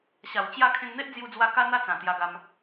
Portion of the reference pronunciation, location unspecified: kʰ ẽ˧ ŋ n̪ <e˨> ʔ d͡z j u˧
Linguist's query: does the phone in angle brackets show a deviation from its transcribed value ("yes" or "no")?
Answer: yes